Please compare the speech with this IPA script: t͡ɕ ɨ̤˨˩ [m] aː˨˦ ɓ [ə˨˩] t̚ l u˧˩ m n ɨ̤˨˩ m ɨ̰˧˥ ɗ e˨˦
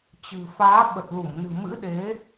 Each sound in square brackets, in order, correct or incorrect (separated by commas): incorrect, correct